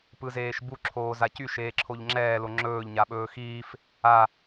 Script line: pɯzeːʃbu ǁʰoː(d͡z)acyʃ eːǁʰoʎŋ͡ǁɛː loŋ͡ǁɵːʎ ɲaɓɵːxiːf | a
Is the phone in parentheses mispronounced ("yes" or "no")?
yes